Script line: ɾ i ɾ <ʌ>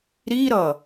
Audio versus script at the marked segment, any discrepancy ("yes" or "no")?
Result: no